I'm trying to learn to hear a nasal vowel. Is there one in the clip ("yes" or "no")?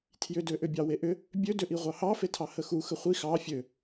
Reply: no